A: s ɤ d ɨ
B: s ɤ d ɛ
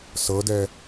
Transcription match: B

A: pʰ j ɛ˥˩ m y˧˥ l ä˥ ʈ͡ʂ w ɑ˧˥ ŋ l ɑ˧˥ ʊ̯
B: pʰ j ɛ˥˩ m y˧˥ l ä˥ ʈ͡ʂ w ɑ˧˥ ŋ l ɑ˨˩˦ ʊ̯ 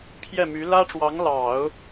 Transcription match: B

